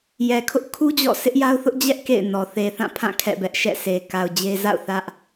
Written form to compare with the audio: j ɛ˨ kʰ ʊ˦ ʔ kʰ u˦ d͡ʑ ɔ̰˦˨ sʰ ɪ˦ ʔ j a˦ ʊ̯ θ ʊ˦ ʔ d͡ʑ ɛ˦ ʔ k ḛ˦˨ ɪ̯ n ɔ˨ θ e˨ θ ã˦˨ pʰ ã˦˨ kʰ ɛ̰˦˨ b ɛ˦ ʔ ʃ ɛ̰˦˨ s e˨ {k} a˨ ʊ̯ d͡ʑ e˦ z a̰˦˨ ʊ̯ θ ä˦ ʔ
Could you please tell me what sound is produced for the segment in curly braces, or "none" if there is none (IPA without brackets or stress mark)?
k